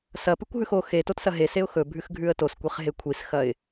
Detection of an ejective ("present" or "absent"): absent